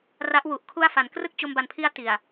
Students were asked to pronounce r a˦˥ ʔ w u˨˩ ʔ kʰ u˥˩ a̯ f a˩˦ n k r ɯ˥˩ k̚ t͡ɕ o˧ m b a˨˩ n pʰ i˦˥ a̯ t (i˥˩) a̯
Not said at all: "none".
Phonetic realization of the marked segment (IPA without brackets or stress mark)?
i˨˩